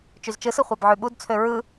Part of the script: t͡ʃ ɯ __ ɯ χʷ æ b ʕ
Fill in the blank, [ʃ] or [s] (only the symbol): s